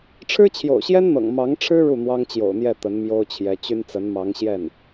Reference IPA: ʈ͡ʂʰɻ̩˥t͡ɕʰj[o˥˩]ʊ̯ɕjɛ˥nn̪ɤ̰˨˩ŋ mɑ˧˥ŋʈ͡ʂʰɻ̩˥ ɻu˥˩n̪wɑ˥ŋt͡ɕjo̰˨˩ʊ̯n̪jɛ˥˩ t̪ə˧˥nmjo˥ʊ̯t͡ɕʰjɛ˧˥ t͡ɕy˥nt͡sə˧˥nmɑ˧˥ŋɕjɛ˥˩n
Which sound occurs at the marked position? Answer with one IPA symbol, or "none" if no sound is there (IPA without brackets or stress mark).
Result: o̰˨˩